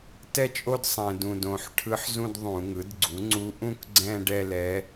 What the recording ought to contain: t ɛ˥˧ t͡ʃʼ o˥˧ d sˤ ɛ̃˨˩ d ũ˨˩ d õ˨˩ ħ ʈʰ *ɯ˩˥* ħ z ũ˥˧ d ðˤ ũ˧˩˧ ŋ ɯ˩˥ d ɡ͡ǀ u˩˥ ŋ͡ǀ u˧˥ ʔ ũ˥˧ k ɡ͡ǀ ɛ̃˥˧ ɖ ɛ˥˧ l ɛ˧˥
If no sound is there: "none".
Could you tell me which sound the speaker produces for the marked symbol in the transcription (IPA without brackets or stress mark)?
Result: ɯ˧˥